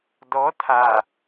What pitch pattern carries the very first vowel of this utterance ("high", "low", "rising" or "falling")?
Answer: rising